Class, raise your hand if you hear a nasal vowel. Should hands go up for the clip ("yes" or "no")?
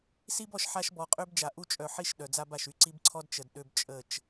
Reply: no